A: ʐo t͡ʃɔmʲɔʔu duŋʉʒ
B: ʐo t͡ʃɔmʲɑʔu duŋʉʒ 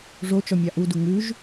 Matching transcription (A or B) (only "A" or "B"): B